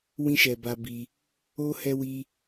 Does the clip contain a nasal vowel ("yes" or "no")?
yes